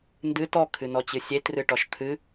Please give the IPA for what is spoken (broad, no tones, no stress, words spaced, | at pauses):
ndɨ tɔkʰɨnɔt͡ɕɨ sʲetrɨʈɔʃ t̪ʰɨ